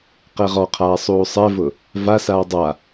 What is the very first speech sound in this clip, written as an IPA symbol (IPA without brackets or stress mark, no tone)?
q